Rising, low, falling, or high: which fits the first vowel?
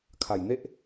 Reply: low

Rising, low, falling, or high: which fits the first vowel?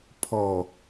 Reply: low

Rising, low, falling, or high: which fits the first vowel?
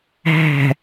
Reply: low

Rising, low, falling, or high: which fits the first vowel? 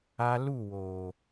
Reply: high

